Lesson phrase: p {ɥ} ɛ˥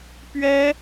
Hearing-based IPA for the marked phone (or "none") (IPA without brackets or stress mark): ɥ